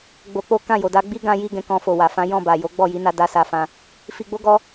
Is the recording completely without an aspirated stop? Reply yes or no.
yes